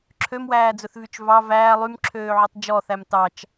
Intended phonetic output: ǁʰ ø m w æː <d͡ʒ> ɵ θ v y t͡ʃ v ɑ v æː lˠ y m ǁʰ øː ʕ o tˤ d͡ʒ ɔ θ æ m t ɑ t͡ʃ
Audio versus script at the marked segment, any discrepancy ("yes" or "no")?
yes